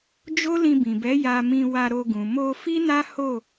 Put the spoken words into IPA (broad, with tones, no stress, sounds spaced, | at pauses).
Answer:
d͡ʒ o˦ l ĩ˧ b ĩ˨ b ɛ˨˦ j a˧ m ĩ˧ w a˧ ɾ o˧ ɡ ũ˨ m o˧ f i˦ n a˦ h o˦˨